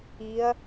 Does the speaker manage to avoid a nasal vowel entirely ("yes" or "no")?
yes